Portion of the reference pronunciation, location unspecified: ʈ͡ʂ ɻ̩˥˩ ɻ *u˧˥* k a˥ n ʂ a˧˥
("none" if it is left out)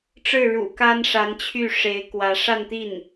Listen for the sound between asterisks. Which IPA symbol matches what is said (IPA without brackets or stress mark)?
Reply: ṵ˨˩